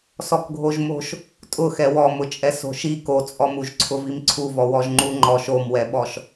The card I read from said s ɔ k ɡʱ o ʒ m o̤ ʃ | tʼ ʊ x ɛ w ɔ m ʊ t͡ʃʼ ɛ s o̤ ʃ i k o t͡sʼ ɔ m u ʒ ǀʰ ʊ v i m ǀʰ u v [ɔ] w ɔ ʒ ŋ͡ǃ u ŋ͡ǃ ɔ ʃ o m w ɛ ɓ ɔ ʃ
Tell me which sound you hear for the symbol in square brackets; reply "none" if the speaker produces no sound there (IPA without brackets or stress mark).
ɔ